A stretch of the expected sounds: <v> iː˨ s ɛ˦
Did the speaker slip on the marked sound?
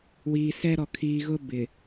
yes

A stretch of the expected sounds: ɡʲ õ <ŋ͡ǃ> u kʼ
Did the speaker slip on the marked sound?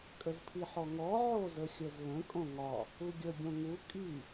yes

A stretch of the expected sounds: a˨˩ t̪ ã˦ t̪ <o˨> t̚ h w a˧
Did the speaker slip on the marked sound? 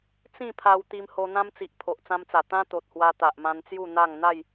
no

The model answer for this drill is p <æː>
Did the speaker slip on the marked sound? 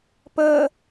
yes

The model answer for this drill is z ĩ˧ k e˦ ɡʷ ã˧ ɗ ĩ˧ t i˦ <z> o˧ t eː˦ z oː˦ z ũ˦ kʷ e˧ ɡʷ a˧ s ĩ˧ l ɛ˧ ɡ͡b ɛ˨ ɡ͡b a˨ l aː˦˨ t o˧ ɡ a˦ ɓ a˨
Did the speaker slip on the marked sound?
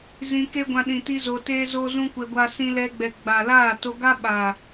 no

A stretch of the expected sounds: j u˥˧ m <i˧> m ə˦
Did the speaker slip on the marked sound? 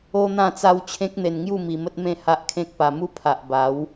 no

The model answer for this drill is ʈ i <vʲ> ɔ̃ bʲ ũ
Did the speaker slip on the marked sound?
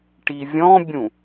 no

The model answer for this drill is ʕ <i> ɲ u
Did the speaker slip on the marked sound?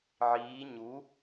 yes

